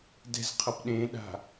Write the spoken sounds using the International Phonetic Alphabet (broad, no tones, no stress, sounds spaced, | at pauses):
d ɛ̤ z qʰ ʌ p ɗ ẽ ɗ a̤